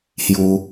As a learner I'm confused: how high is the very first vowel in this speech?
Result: high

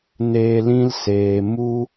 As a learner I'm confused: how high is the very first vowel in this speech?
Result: mid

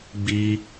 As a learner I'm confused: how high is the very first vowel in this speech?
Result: high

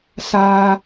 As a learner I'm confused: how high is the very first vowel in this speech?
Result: low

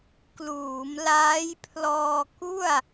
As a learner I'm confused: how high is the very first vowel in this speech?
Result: high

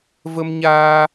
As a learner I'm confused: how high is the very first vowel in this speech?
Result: mid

